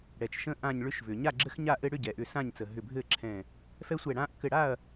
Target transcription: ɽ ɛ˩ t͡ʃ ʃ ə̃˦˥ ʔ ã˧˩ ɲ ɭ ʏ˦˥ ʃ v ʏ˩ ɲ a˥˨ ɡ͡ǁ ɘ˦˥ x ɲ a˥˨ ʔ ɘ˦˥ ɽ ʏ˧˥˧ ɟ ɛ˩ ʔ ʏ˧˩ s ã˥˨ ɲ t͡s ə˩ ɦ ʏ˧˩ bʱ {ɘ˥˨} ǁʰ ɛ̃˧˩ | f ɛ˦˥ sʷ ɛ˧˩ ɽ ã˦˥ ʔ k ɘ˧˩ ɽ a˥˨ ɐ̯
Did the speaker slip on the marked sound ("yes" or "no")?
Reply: no